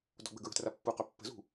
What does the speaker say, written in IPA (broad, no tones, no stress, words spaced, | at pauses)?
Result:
dɔ̤ɡ͡bə̤ɡɹə̤tra pːuqœ pːə̤zṳ